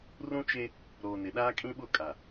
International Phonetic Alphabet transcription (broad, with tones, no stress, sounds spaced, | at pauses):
r ũ˦ t͡ʃ e˦ | ɾ oː˨ n ɪ˨ ɗ aː˦ kʼ ĩ˦ ɓ ʊ˦˨ kʼ a˨